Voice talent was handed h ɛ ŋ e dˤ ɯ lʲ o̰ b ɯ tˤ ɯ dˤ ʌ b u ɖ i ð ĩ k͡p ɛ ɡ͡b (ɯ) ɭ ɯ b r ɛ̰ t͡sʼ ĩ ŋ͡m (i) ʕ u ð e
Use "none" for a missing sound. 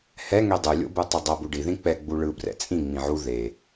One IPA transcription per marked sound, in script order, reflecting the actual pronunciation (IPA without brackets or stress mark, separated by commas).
u, ĩ